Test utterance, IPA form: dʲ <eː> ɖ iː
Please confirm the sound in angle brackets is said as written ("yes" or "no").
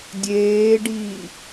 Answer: yes